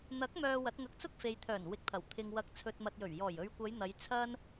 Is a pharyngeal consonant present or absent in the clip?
absent